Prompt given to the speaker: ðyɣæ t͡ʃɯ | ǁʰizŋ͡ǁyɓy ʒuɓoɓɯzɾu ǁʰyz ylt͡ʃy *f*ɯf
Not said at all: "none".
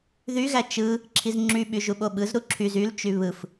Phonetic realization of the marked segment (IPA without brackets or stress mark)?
β